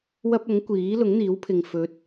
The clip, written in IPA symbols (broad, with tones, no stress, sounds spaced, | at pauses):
w ɐ˥ p̚ ɐ˨˥ ŋ kʷ iː˨˥ l ʊ˨˥ ŋ n̪ iː˨˥ w pʰ ɪ˨ ŋ f ɵ˨˥ t̚